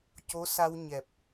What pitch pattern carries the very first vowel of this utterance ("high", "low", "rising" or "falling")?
rising